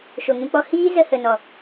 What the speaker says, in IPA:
ʃ o˨ ŋ ũ˧ k͡p ɔ˧ h iː˦ z ə˧ h ə˨ n ɔ˨

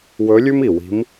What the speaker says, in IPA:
w ɵ˧˥ lʲ ʉ˥ m i˩ w i̤˧˥ m

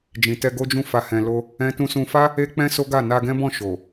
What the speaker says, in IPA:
d͡ʒ ĩ˨ t ɛ˧ ɡ o˦ d͡ʒ ũ˦˨ f a˧ h ɛ̃˧ l o˦ | ɛ̃˦ t ũ˦ s ũ˧ f a˦ | e˦ k͡p ɛ̃˦ s o˦ ɡ a˦˨ n a˧ ɡ ɛ̃˦ b ɔ̃˦˨ ʃ o˨

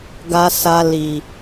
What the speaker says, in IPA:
ɡ a˨ s a˨ l i˨

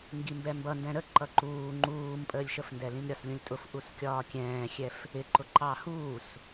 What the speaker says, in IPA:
ŋ ɡ i m b ɛ m b ʌ n d ɛ̃ ɾ ə ǃ ʌ ǃ uː ŋ͡ǃ uː m pʼ əː lʲ ʃ ə f n d ɛ l ĩ m ɾʲ ɒ s lʲ ũ lʲ tʼ ʊ f ʔ u s kʲ ɒː kʲ ɛ̃ː xʲ ɛ f | ɪ ǃ ʊ ǃ ɑ h uː s

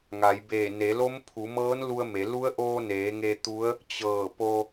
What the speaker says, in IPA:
ŋ a˩˧ j b eː˧˩ n e˩˧ l o˧˥ m pʰ u˩˧ m ɤː˧˥ n l u˧ ə̯ m e˩˧ l u˧˥ ə̯ ʔ oː˧ n eː˩˧ ŋ e˧ t̪ u˧˥ ə̯ | t͡ɕ ɤː˧˩ p o˧

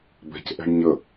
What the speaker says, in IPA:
b ɛ̤ c ʔ ɛ̤ ɳ ɲ ə

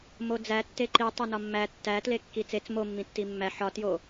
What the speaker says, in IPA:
m o d͡z æ tː e ǃ i tˤ o n ɒ mː æ tː æ t l e kː i t͡s e t͡s m o mː ĩ tː i mː æ ħ ɒ t j o

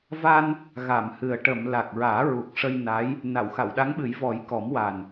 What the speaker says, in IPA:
v a˧ n | ɣ a˨˩˨ m h ɨ˨˩ ə̯ ʈ ə˨˩˨ m l a˨˩ k̚ ɹ aː˨˩˦ ɹ u˨˩ k̚ ʂ ə˧ j n a˧˥ j | n a˨˩˨ w x a˨˩˨ w ɗ a˧˥ ŋ ɓ ɨ˨˩˦ j v ɔ˨˩˦ j k ɔ˨˩˦ m w a˨˩ n

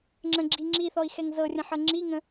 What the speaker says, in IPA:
ŋ͡ǁ ə̃ ɡ͡ǁ i ŋ͡ǁ i θ ɔ i̯ x ɛ ŋ z ɤ rʲ ə̃ ħ ɤ ŋ͡ǁ i ŋ ə̃

